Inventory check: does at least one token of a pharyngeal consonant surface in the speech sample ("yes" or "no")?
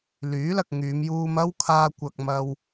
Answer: no